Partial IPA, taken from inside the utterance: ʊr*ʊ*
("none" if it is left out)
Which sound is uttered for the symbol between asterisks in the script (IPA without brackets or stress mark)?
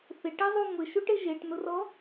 ɔ